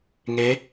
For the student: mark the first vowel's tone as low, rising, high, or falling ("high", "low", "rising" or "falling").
rising